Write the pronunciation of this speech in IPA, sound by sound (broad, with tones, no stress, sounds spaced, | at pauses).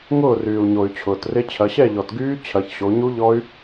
ŋ ʊː˥˩ r yː˩ u̯ ɲ o˩ y̯ t͡ɕʰ ʊː˩ t r ɪ˦˥ t͡ɕʰ ɐ˩˧ ɕ ɛ˥˩ ʎ ɔ˩ t ɡ yː˦˥ t͡ɕʰ ɐ˩˧ ç ɕ o˩˧ ɲ u˦˥ ʎ ɔ˦˥ y̯